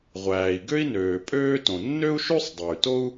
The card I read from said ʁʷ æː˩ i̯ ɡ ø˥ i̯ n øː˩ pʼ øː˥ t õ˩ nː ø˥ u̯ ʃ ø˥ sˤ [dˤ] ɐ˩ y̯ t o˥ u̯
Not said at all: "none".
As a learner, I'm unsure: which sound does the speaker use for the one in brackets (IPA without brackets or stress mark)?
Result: dˤ